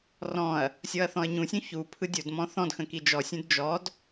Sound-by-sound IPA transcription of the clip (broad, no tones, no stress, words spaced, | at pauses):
rɔ̃ɐ̯ | sʲɔɐ̯θɔ̃ɐ̯ɲũsʲũ çu pʰɯdʲodmɔ̃ θɔ̃dxə̃ kid͡ʒɔsʲũd d͡ʒɔd